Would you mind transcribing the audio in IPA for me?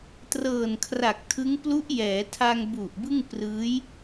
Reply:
t r ɤː˨˩ n kʰ r a˨˩ k̚ tʰ ɯ˦˥ ŋ p l u˦˥ ʔ j ɛː˩˦ tʰ a˧ ŋ b u˨˩ ʔ b ɯ˥˩ ŋ p r ɯː˦˥ j

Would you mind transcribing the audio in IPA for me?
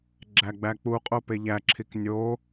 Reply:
ɡ͡ǁ æ ɡ͡b æ k͡p u qʼ o p e ʎ æ ǁʰ i k nʲ o

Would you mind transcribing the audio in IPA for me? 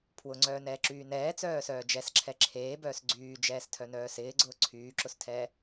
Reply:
pʰ w ʊ ŋ͡ǀ œː n ɛː ǁ yː n ɛː t͡s œː s œː d͡ʒ ɛ s ǁʰ ɛ ǁʰ eː b œː s ɡ͡ǀ yː d͡ʒ ɛː s tʰ œ n œː s ɪː ɡ͡ǀ ʊː ǀʰ yː ǁ ʊ s tʰ ɛː

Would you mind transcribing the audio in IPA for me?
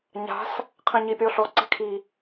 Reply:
ɲ a̤ s | qʰ ɛ̃ ɲ i pʲ ɔ ɬ ɔ ǀ ɛ̤ kʰ i

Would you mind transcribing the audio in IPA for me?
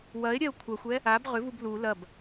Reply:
w ɐ e̯ ɾʲ ɛ o̯ kʷʰ ɐ xʷ ɛ | a b ʁ ʏ v u b l u l ɐ b

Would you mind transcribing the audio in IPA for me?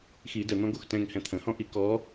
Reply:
x i d ə n̪ ɔ̃ ɡ o x t ɛ̃ ŋ h ɛ̃ t̪ʰ ə̃ h ɔ̃ ʔ i k ɔ

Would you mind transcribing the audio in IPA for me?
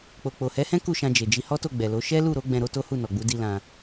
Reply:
k͡p o˨ k͡p o˨ h ɛ˨˦ h ɛ̃˦ k u˦˨ ʃ ã˧ d͡ʒ e˨ d͡ʒ i˧ h ɔ˦ t o˦˨ ɡ͡b ɛ˨ l o˨˦ ʃ ɛ˦ l u˦˨ ɾ o˨˦ ɡ͡b ɛ̃˧ ɾ o˦ t o˦ h u˦˨ n ɔ˨ ɡ͡b u˨˦ d i˧ l ã˧

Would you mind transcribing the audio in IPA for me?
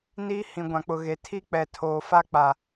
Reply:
n i˦ h ĩ˨ ɡʷ ã˨ k͡p ʊ˨ ɣ e˨ tʰ i˦ k͡p ɛ˨ tʰ oː˨ f a˦ k͡p a˨

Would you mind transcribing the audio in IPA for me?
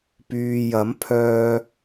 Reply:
p yː˨ j ɐ˨˥ m pʰ œː˧

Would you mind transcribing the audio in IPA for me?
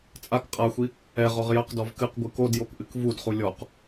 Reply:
t͡sʼ a k qʼ a xʷ i | ɛ ʁ ɔ ʁ j ɐ q d ɔ v k ɨ q ɡʷ ɨ k o d j o k ʔ ɨ k v u d χ u lʲ ɔ q

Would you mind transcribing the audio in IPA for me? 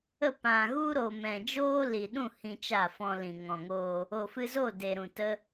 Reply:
ə˦˨ p ã˨ ɣ u˦ ɾ o˨ m ɛ̃˨ d͡ʒ oː˦ l i˨ ɗ ũ˦˨ h ĩ˧ t͡ʃ a˦˨ f ɔ̃˧ l ĩ˨ ŋ ɔ̃˨ ŋ oː˧ | o˨ f ɨ˧ z o˦˨ d e˨ ɾ ũ˨ t ə˦

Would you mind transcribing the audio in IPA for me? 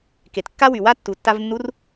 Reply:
k e˩ t kː a˥ w y˩ w a˥ tː u˩ tː a˧ v nː u˧˥ r

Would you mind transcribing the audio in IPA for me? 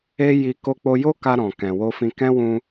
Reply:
e˦ j i˧ k o˧ k͡p o˧ j o˦ k a˧ ɾ ɔ̃˨ k ɛ̃˨ w o˧ f ĩ˧ k ɛ̃˦ w ũ˧

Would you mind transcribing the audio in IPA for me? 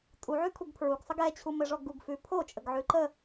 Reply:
tʼ u ʕ ʉ kʰ u ɡ pʰ ɹ u ɡ sˤ ə ɡ ɛ t͡ɕʰ u m ɘ ʐ ɔ ɡ u ɡ f ʉ pʰ o t͡ʃʼ ə ɡ ʕ ʉ ǃ ə

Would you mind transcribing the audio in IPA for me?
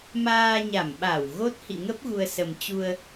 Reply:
m aː˧ ɲ a˧˩ m ɓ a˧˩ w ɣ o˦˥ t̚ h ḭ˧˨ ŋ ə˦˥ p̚ ɣ u˧ ə̯ s ə˨˩ m t͡ɕ u˧ ə̯

